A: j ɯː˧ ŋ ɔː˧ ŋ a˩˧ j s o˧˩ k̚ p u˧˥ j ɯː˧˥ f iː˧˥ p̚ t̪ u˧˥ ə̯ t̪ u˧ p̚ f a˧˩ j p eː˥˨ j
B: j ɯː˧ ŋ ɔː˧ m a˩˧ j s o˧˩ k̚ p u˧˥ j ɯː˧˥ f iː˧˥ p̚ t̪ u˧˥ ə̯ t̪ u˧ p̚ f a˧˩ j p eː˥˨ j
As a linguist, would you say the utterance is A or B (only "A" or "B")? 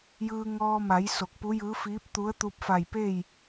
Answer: B